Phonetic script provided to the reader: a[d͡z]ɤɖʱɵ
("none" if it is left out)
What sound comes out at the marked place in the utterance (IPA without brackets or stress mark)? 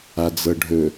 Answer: d͡z